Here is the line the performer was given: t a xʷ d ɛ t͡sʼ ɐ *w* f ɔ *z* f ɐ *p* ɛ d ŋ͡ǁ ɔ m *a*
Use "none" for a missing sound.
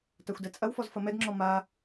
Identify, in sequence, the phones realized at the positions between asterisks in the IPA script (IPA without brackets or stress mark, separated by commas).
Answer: w, z, m, a